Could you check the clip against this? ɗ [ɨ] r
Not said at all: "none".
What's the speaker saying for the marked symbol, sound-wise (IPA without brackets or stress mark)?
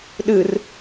ɨ